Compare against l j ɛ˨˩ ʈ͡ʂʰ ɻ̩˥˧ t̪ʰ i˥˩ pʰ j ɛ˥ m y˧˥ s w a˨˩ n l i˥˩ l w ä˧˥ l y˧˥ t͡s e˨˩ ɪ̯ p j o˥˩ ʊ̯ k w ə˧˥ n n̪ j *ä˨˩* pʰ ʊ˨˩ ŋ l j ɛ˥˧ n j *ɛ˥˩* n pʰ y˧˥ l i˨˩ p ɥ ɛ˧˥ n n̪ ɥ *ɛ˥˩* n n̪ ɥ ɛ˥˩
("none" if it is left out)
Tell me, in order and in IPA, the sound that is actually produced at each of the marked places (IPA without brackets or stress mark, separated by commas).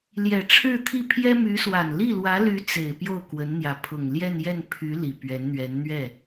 ä˧˥, ɛ˥˩, ɛ˧˥